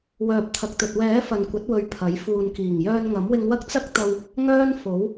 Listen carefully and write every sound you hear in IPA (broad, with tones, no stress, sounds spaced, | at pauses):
w œː˨ p̚ t̪ʰ ɐ˨ k̚ t̪ ɵ˨ t̚ w ɛː˨˥ f ɐ˨ n kʷ ɐ˨˥ t̚ w ɵ˨ ɥ pʰ ɐ˨˥ j f uː˨ n k iː˨˩ ŋ j œː˧ n ŋ ɐ˨˥ m w ɪ˧ ŋ w ɐ˥ k̚ t͡s ɐ˥ k̚ t̪ ɐ˧ w | ŋ œː˥ n f o˨˥ w